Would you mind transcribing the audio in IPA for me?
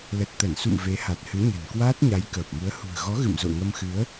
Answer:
l ə˨˩ t̚ t̪ ə˧˩ n s ṵ˧˨ m v e˨˦ h a˨˩ t̚ h ɨ˨˦ ɲ ə̤˨˩ n k w aː˦˥ t̚ ɲ a˨˦ j k əː˨˩ p̚ m u˨˦ ə̯ h ṳ˨˩ ə̯ ɣ ɔ˨˦ ɣ ɨ̰˧˨ m z o̰˧˨ ŋ ə˧ m x ɨ˨˦ ə̯

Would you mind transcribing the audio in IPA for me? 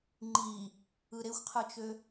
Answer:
ŋ͡ǃ i | ɯ ɾ e xʷ qʰ ɯ t͡ʃ ø

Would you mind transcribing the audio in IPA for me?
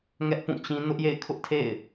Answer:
ŋ ɛ˦ ʔ p ũ˦˨ t͡ɕ ĩ˦ n ʊ˦ ʔ j ḛ˦˨ ɪ̯ kʰ ʊ˦ ʔ tʰ ḛ˦˨ ɪ̯

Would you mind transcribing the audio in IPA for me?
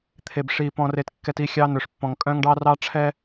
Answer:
t̪ʰ e˨ b ʂ i˨ p ɔ̃˨ r e˨ t kː ɛ˨ t i˦˨ xʲ ɑ˦ n ɵ˨ ʂ pː ɔ̃˨ ŋ kʼ œ̃˦ ŋ ɖ ɑ˦ r ɑ˦ ʈ͡ʂʰ ɛ˦

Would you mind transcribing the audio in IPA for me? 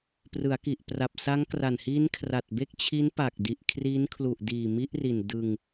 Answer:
p r ɯ˩˦ a̯ k i˨˩ ʔ p r a˨˩ p̚ s a˦˥ ŋ k r a˨˩ n h iː˦˥ n kʰ r a˨˩ t̚ b e˥˩ k̚ t͡ɕʰ i˦˥ n p a˨˩ k̚ d i˨˩ ʔ kʰ r iː˦˥ n kʰ l u˨˩ ʔ d iː˨˩ m i˦˥ ʔ r i˨˩ n d ɯ˧ ŋ

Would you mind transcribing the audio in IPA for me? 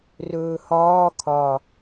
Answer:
r ɵː h ɒː kʰ ɒ

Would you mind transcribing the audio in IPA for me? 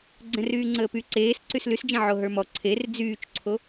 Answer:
ɡ͡ǀ ɛ̃ r yː ŋ͡ǀ əː p y ǀ eː s ǀ y s l y s d͡ʒ ɛ̃ ʕ o ɦ ə˞ m ɔ ǀʰ e r d͡z yː t͡ʃ ǀʰ o

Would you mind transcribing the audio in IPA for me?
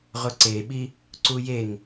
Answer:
ʁ ʊ ǀ e ɓ i | ǀ u j e ŋ

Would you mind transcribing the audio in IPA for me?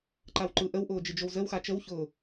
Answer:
ǃ a w ǃ ɯ ʔ ə w ʔ ʊː d͡ʒ ɨ d͡ʒ o w z ə w x a t͡ʃ ə w ç ʊː

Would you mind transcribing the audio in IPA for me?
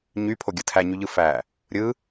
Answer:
ɲ y pʰ o ɡʲ ɯ tʰ æ ɲ y ʎ ɯ f æ | ɾʲ ɯ

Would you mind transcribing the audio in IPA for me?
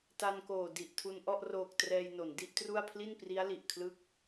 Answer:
t a˧ n k oː˨˩ d i˨˩ ʔ tʰ u˧ n ʔ ɔ˥˩ ʔ r oː˨˩ k̚ t r ɛː˧ j n o˩˦ n d i˥˩ ʔ t r u˥˩ a̯ pʰ l i˥˩ n p r i˦˥ a̯ l i˨˩ ʔ kʰ l ɯ˥˩ k̚

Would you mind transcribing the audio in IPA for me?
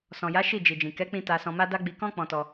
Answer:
s ɔ̃˨ j a˨˦ ʃ i˦˨ d͡ʒ i˨ d͡ʒ ĩ˨ k ɛ˨˦ k͡p ĩ˧ t a˨ s ɔ̃˨ m a˧ d a˧ ɡ͡b i˧ k ɔ̃˦ k͡p ɔ̃˧ t ɔ˧

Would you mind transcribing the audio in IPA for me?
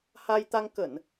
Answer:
h a˧ j t̪ a˧ ŋ k ə˧˩˨ n

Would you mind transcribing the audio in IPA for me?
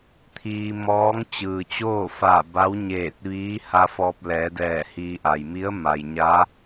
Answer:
t̪ʰ iː˧ m ɔː˧˥ ŋ t͡ɕ ɯː˩ t͡ɕ oː˥˨ f aː˧˩ b a˧˥ w ɲ eː˧˩ t̚ ʋ iː˧˥ h a˧ f ɔː˧ p̚ l ɛː˩˧ d ɛː˧˩ h iː˧ ʔ a˩ j m i˧˥ ə̯ m a˩ j ɲ a˧˥

